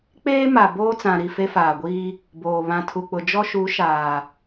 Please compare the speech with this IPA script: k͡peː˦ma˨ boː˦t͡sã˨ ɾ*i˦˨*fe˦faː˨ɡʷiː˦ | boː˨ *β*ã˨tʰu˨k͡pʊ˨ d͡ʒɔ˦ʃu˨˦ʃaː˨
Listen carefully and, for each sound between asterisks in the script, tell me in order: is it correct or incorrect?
correct, correct

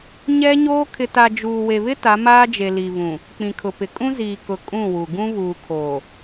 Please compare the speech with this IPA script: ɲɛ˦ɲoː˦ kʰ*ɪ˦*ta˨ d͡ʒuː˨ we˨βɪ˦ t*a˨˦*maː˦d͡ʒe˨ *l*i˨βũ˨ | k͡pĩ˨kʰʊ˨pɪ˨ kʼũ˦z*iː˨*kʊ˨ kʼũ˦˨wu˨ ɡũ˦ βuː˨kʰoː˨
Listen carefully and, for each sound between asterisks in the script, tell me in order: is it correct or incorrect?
incorrect: ɪ˨, correct, correct, correct

